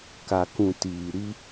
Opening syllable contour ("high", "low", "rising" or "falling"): low